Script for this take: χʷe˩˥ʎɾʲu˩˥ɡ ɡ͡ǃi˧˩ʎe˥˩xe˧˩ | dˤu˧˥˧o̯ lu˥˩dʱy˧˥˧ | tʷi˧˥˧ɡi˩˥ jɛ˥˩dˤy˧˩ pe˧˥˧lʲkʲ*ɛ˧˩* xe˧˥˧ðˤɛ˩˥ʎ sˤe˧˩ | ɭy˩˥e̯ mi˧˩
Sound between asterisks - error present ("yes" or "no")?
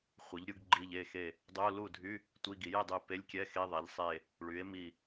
yes